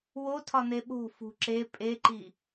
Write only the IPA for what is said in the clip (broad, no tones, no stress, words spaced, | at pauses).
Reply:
wotʰɒn̪e ɓo̤ fṳ ǁe pʼeǃi